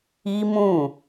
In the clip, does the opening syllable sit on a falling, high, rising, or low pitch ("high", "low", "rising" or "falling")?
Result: high